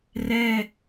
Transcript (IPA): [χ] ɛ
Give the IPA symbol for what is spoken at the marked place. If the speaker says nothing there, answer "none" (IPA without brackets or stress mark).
r